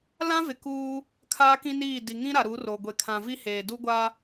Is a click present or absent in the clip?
absent